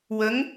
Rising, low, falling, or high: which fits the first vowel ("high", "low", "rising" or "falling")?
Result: rising